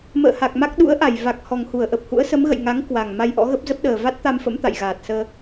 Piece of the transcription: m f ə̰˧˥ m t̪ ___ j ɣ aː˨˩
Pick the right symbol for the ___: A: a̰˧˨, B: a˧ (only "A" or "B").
A